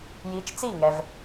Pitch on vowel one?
rising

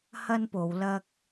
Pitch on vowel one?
high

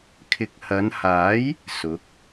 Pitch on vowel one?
low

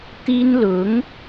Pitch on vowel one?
high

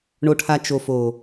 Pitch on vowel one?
low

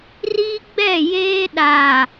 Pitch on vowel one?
high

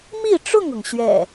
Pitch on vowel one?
falling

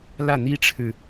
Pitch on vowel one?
falling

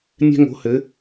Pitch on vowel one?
high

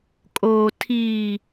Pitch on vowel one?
low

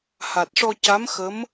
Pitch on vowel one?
low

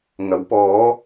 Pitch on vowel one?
rising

